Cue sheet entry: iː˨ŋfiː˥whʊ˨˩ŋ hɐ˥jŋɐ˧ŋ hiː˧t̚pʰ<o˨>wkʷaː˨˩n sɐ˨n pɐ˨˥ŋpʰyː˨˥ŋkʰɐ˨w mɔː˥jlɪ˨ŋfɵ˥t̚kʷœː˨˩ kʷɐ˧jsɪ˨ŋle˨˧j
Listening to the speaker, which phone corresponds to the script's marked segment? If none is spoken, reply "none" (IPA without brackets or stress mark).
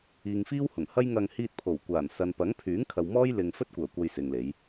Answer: o˨˩